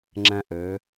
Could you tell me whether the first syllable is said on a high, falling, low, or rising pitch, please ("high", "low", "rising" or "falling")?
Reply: high